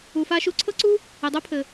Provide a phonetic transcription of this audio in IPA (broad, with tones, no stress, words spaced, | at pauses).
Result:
u˨fa˧ʃu˧ ǀʰɤ˦ǀu˦ | ɘ˨dˤœ˦pʰɘ˨